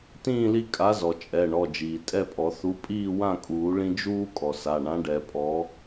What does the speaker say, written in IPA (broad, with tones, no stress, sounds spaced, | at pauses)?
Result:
t ĩː˥˨ l i˦ kʼ a˨˥ z ɔ˩ t͡ʃʼ ɛ˩˧˩ ɳ ɔ˩˧˩ d͡ʒ iː˩ tʼ ɛ˥˨ pʼ ɔ˨˩˦ θ u˨˥ pʼ iː˥˨ w ã˥˨ kʼ uː˨˩˦ ɭ ĩ˦ d͡ʒ uː˦ kʼ ɔ˩ s a˩˧˩ ɳ ã˨˥ ɖ ɛ˨˩˦ pʼ ɔ˨˥